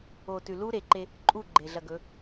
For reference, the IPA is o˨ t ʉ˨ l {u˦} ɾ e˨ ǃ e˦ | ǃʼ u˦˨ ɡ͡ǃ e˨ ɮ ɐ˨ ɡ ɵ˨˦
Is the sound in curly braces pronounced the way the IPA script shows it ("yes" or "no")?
yes